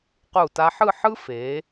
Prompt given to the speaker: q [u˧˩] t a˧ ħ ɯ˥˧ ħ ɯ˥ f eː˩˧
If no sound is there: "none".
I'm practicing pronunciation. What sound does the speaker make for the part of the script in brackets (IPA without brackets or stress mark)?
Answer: u˧˩